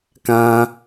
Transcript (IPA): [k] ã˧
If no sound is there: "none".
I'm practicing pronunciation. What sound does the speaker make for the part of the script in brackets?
k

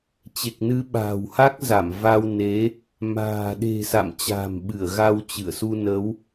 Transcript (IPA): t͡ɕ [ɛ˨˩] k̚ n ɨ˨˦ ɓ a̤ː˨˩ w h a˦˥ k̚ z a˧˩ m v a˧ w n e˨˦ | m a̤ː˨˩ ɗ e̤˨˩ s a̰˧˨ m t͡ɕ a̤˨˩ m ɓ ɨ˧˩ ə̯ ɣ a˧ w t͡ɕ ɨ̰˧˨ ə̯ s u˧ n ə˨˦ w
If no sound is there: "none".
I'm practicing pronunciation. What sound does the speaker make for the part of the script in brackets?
e˨˩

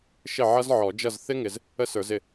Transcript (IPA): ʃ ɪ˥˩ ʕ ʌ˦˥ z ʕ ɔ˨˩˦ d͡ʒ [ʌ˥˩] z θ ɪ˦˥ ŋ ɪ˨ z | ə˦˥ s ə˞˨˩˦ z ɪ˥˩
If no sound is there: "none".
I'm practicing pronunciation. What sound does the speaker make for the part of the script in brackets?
ʌ˥˩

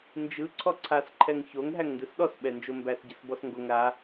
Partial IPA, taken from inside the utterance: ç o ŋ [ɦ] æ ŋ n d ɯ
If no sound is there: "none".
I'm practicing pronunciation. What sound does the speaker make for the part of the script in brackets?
ɦ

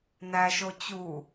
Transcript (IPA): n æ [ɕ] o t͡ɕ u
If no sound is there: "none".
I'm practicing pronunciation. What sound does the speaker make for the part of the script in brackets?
ʃ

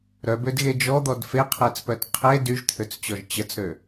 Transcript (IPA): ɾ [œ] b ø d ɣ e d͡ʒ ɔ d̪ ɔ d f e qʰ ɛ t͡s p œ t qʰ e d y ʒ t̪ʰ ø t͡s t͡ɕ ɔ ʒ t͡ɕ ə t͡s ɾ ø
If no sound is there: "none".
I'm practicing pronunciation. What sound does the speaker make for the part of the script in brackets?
œ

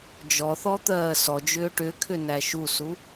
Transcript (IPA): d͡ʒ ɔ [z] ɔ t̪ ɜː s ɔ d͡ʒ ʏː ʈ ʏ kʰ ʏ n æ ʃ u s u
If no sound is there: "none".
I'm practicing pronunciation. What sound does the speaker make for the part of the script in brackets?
θ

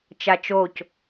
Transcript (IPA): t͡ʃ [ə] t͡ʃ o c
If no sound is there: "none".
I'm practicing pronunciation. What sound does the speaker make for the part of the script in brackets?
a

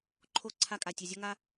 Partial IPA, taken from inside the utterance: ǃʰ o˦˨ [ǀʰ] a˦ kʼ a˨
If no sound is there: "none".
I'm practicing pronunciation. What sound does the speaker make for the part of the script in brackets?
ǀʰ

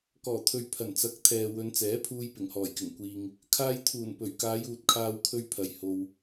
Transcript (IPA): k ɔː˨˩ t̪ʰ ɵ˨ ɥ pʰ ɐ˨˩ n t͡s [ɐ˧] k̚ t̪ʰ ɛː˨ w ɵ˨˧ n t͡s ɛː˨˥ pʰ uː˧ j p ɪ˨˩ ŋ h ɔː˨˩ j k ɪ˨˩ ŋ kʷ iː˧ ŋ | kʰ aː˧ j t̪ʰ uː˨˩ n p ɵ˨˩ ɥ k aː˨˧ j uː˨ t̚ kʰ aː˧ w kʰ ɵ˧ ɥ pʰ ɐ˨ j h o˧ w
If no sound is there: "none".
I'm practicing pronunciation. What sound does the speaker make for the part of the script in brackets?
ɐ˨˥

